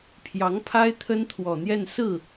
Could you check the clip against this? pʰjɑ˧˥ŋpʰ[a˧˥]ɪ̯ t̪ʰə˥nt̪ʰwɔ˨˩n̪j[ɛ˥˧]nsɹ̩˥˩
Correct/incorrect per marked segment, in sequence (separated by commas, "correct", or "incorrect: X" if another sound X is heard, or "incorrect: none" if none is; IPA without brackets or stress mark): incorrect: a˥, correct